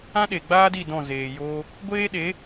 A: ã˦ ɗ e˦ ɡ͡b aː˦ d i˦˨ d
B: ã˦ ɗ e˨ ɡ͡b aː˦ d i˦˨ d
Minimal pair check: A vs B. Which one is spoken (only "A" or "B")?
B